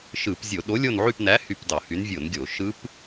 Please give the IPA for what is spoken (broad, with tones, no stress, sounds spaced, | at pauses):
ʃ ɯ˧˩˧ p zʲ o˧˩˧ ɗ o˨˥ lʲ o˦˨ n ʕ y˦˨ p n æ˨˥ h y˦˨ p d ɑ˧˩˧ h y˨˥ n vʲ o˧˩˧ n ɡʲ o˧˩˧ ʃ ɯ˦˥ p